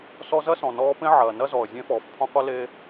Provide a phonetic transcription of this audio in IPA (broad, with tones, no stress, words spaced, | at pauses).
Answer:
sɔ˦zɐ˥ sɔ̃˩nɔː˦pẽ˥ʕɐː˩ nɐ˥zɔ˩ə̯zʲẽ˦ fɔː˩fpʰɔ̃˦qʷɐ˥le˦